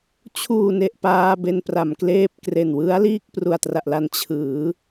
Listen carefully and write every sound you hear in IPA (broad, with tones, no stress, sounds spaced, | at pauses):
t͡ɕʰ uː˨˩ n e˨˩ ʔ p aː˧ b e˧ n p r a˩˦ m k l eː˥˩ p̚ k r e˨˩ n w ɯ˦˥ a̯ l iː˥˩ k̚ p r u˨˩ a̯ t r a˨˩ ʔ l a˧ n t͡ɕʰ ɯː˩˦